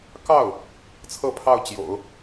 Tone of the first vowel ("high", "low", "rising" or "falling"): falling